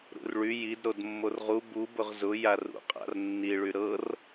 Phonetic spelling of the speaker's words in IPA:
ɾṵrɭy jid ɾodmːorʁu bu bʊʁzʊ jarṵqʼa̰r nːiɭy ɾɤr

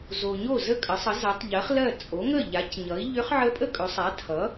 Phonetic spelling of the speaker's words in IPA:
zo˨ɲo˥˩ zə˥˩kʼə˩˥sˤə˩˥ za˩˥tˤʎɜ˩˥χ lɜ˥˩ t͡sʼo˩˥ŋə˥˩ ʎa˩˥cɲʌ˩˥i̯ ʎʏ˧˥χʕə˧˥ pʼə˥kʼɵ˩˥ sˤa˩˥tʰʌ˩˥

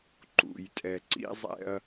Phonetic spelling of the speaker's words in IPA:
ǃṵ˨j tʼɛ˨ǀḭ˦zˤɛ̰˦ɐ̯

